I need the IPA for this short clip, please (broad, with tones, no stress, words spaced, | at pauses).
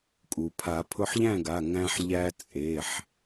kʼu˩pʰa˨˩˦ pʰʊ˧ħʎæ̃˥˨ɡa˩˧˩ ŋæ̃˧ħ ʎæ˧t͡sʼe˩˧˩ħ